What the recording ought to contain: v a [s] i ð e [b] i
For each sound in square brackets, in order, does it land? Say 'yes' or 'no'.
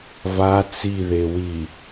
no, no

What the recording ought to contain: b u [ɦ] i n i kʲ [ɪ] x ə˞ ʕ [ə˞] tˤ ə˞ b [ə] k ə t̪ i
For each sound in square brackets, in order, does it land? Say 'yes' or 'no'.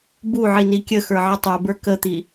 no, no, no, no

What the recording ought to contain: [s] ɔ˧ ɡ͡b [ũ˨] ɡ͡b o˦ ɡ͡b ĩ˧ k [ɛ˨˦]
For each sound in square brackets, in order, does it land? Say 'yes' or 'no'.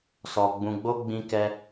yes, no, no

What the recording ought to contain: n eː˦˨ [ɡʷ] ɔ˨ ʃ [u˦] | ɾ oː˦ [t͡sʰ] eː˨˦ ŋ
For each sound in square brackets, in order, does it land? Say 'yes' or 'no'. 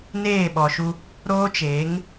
no, yes, no

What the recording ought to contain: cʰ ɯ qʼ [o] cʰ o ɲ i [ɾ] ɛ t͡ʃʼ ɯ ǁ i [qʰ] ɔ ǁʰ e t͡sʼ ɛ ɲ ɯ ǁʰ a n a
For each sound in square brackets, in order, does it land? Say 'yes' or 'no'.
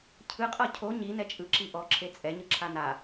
no, no, no

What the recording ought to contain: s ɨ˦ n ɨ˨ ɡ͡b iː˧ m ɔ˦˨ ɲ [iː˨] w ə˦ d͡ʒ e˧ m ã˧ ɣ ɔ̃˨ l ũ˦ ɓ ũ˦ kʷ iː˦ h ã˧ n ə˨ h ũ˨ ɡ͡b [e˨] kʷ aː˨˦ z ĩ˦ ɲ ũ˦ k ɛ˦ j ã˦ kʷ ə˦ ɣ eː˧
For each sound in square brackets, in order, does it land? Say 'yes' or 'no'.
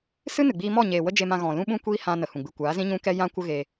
no, no

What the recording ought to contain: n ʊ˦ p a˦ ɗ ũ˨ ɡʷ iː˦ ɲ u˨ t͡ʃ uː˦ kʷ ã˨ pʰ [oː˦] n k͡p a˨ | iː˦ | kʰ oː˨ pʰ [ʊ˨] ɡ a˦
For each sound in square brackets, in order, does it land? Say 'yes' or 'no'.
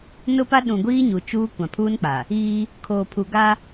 no, no

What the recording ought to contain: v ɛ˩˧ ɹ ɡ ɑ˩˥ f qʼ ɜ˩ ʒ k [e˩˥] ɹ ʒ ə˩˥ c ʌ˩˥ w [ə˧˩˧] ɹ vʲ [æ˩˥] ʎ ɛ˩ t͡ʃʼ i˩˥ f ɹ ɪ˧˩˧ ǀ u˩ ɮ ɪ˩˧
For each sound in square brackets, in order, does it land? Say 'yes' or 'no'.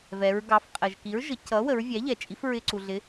no, no, yes

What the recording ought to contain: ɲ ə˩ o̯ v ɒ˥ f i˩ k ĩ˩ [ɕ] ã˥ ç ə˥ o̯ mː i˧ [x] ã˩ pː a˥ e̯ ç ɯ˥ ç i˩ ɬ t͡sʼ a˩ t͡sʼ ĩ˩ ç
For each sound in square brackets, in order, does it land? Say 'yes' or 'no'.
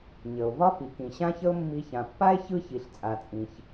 yes, no

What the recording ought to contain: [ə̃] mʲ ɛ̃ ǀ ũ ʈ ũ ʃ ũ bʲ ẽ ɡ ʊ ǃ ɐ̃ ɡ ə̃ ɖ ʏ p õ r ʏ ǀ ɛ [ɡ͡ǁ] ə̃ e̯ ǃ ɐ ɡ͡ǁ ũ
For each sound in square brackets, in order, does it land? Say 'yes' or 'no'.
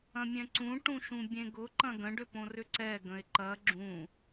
no, no

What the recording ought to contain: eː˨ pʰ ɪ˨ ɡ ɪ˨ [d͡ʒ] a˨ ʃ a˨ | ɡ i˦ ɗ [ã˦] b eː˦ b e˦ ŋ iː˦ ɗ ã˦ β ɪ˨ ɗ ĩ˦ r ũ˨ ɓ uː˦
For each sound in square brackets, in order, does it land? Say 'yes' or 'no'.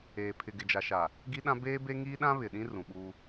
yes, yes

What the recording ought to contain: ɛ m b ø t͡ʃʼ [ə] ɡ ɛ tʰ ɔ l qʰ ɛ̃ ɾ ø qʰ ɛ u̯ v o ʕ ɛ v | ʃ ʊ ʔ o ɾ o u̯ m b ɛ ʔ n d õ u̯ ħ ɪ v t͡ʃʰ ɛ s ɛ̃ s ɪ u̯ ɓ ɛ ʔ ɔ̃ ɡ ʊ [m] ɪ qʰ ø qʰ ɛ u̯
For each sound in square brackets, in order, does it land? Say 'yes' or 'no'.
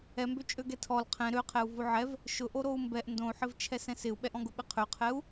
no, no

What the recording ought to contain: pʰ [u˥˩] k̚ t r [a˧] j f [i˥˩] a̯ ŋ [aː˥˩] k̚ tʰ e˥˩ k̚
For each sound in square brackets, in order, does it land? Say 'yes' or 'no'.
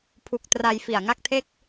no, yes, no, no

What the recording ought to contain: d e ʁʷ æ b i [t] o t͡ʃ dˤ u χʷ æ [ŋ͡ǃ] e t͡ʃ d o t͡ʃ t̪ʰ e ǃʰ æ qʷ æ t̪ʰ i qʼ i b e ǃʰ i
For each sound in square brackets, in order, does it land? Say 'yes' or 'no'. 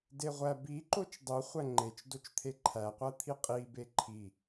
no, yes

